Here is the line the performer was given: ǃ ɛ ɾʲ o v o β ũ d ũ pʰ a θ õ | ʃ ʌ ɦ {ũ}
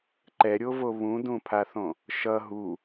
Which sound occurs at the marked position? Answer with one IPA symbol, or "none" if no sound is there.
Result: u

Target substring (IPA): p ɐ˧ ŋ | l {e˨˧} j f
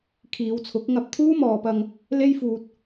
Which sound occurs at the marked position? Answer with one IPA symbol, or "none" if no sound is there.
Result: e˥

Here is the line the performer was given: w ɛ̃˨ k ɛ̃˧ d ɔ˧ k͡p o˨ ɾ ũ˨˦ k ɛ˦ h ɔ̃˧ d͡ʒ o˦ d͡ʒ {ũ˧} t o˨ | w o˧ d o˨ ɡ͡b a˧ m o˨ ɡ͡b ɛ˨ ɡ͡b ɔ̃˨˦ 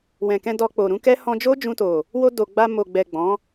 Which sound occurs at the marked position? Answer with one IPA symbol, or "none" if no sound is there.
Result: ũ˧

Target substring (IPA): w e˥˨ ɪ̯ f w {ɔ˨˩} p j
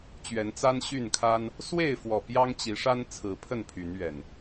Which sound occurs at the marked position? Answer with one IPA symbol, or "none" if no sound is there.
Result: ɔ˨˩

